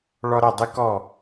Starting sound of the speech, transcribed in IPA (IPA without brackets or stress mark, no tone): ɭ